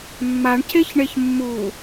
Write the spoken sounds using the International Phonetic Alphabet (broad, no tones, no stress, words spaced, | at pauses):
mːaɳcʰeçɳeç mːu